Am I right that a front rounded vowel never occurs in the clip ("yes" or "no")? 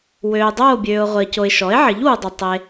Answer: no